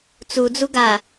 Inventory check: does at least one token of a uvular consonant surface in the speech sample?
no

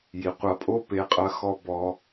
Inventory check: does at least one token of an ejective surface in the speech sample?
yes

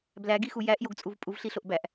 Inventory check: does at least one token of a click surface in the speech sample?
no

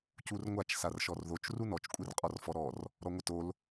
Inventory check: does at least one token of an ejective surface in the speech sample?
yes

